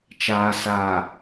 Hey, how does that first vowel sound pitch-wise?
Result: low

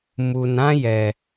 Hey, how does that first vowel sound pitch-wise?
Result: low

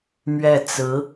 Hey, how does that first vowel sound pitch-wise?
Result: falling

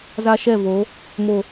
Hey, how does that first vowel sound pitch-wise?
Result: high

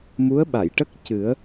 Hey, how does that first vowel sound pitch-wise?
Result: rising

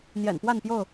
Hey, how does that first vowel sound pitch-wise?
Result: low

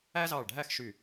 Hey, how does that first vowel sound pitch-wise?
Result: high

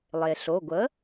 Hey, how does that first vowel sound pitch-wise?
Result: low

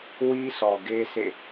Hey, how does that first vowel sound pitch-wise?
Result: high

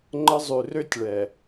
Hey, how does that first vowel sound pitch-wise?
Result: high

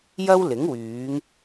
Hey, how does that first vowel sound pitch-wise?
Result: high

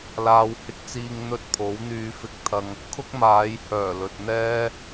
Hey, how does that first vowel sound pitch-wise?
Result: low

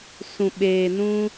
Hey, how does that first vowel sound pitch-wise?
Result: low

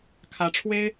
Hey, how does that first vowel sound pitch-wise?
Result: rising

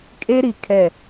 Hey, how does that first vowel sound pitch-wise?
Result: high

